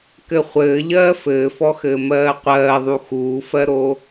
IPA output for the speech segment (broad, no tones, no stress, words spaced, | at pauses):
kɘχʷɘː ʎɜːfɘːfɔxɘː mɜːqʷɜːðˤu xuːfɜɾo